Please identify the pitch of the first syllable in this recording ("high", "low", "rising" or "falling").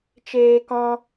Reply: high